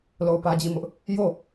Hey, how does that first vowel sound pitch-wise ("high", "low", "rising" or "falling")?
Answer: falling